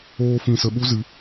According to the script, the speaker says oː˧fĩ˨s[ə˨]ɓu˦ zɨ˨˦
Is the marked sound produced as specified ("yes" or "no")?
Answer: yes